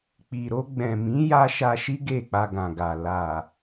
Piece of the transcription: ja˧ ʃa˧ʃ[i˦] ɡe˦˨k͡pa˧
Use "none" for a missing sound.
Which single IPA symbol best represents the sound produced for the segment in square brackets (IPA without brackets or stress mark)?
i˦